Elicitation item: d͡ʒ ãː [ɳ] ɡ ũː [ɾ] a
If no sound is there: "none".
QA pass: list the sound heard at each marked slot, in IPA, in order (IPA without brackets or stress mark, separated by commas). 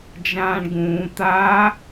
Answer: ɳ, t̪